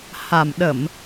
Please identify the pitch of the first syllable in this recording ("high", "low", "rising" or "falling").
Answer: low